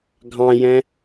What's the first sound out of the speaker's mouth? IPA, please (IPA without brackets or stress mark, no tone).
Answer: ɡʱ